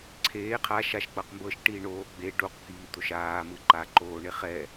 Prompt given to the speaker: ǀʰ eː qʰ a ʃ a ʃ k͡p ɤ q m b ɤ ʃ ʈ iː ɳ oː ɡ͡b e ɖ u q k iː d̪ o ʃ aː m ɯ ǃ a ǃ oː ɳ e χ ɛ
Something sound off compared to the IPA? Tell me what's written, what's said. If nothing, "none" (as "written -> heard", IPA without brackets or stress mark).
none